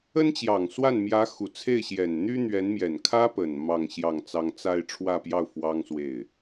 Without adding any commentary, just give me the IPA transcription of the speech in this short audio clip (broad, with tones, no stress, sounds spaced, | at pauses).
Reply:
ə˥ n t͡ɕ j ɑ˨˩ ŋ s w a˥˩ n m j ä˧˥ x u˨˩ t͡sʰ e˥˩ ɪ̯ ɕ j ɛ˨˩ n n̪ y˥ n̪ ɥ ɛ˧˥ n m j ɛ˨˩ n kʰ ä˥ p ə˨˩ n m ɑ˥˧ ŋ ɕ j ɑ˥˩ ŋ t͡s ɑ˥ ŋ t͡s a˥˧ ɪ̯ ʈ͡ʂʰ w ä˥˧ p j ɑ˥˩ ʊ̯ f w ɑ˥ ŋ s w e˥˩ ɪ̯